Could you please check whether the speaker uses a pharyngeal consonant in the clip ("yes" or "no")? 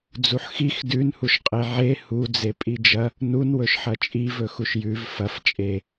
yes